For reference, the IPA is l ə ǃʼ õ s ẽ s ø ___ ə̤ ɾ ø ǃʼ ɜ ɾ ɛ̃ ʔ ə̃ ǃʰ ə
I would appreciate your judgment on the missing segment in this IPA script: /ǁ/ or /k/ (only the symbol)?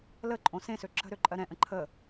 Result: ǁ